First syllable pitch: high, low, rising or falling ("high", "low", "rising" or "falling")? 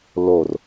low